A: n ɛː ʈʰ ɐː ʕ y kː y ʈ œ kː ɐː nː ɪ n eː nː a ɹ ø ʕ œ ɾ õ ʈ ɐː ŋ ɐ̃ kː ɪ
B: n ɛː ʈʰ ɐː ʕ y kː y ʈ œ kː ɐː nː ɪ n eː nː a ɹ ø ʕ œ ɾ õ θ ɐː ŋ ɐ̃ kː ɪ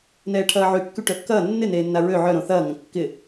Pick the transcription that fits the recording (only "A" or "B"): B